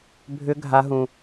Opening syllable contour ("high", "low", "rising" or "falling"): high